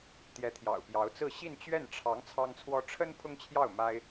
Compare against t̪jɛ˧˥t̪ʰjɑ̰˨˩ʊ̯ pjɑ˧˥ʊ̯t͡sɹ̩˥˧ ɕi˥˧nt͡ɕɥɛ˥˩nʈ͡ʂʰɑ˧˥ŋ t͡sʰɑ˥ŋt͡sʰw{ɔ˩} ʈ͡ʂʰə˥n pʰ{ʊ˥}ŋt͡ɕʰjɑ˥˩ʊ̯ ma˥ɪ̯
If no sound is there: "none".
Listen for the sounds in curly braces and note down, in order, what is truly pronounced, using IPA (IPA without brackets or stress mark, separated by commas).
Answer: ɔ˥, ʊ˥